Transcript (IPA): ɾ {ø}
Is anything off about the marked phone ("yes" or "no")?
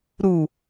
yes